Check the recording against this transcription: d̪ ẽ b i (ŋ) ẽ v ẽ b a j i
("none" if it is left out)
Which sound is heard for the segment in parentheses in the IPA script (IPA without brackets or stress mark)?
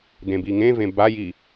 ŋ